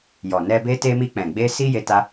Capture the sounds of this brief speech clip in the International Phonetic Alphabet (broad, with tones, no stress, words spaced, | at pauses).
jɔ˨nɛ˧ be˧te˧ mi˧k͡pɛ̃˨ɡ͡be˧ si˦ je˧ta˧